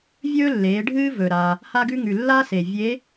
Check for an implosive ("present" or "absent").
absent